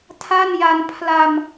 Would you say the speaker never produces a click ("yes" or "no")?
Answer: yes